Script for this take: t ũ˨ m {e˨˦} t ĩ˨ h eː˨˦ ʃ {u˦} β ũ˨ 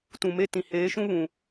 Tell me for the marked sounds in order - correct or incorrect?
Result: incorrect, incorrect

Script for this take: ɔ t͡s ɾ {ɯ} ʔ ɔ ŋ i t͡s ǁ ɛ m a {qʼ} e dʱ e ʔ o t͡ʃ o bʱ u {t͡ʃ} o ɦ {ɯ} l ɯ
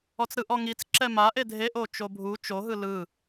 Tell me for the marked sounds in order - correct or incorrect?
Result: correct, incorrect, correct, correct

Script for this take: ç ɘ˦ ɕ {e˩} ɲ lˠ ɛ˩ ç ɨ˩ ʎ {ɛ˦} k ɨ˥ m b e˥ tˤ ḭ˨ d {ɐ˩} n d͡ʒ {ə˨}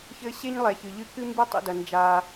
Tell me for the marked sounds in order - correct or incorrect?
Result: incorrect, incorrect, correct, incorrect

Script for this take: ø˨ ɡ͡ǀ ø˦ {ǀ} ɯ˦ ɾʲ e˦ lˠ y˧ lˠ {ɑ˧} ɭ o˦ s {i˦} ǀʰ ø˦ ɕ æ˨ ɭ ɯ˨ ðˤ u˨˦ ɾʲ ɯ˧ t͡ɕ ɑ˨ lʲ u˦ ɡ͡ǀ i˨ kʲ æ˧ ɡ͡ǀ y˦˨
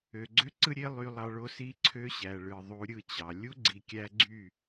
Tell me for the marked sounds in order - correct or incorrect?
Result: correct, correct, correct

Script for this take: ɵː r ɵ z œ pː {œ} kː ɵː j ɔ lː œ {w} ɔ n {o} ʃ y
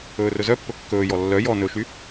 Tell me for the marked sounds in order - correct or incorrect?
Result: incorrect, incorrect, incorrect

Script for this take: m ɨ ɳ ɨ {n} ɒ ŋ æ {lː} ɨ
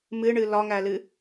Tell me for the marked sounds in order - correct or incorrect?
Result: incorrect, incorrect

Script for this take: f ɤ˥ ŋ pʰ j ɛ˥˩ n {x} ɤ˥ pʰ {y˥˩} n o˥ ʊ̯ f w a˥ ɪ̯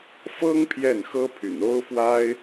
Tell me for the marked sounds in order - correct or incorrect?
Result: correct, incorrect

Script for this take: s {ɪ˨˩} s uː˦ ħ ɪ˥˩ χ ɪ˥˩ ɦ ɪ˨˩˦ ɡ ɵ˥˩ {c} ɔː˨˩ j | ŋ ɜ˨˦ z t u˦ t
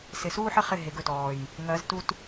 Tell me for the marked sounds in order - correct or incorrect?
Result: correct, incorrect

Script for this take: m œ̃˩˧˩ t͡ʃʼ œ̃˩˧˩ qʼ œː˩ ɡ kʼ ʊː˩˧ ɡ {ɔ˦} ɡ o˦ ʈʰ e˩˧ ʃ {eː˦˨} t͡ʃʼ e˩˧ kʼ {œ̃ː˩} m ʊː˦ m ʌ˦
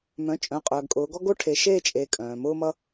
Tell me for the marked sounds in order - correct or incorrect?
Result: correct, correct, correct

